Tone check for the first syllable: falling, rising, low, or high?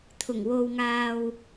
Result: low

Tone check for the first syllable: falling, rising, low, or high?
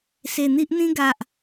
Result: low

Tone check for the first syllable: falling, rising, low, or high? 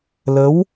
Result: rising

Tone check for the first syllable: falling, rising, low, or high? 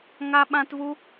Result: high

